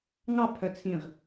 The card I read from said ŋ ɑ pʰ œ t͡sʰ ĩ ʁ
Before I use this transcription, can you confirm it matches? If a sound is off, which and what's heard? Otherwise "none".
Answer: none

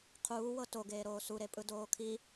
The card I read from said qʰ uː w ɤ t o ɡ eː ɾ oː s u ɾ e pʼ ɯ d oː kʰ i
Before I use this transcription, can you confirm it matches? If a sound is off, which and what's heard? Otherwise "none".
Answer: none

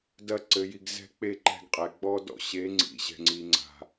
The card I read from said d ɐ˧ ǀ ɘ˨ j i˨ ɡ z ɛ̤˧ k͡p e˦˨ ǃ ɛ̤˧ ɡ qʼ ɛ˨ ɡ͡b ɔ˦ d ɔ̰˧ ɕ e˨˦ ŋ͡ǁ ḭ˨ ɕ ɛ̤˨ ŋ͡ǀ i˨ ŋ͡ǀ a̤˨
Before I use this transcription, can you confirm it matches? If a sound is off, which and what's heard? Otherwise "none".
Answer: ŋ͡ǁ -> ŋ͡ǀ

